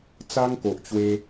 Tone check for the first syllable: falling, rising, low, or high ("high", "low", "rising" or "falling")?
high